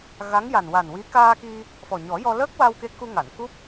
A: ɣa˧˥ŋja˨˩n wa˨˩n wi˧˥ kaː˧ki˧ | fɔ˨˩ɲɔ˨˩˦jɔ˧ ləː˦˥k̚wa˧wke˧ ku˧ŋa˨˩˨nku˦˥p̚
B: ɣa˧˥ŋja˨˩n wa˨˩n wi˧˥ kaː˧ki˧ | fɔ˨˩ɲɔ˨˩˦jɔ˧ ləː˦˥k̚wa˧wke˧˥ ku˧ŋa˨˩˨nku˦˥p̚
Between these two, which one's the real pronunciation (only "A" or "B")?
B